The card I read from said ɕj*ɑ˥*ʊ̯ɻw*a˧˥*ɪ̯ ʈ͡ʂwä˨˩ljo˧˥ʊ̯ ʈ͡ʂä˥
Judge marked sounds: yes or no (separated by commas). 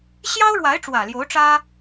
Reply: yes, yes